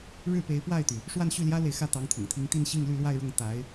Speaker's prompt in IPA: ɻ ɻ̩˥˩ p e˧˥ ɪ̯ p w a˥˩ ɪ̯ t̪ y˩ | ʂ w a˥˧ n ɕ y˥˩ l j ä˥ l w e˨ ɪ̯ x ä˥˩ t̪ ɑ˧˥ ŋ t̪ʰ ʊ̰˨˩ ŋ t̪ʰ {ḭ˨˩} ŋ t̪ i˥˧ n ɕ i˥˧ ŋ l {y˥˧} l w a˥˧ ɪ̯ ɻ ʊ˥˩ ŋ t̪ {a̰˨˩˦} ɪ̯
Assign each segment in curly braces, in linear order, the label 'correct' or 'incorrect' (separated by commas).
incorrect, correct, incorrect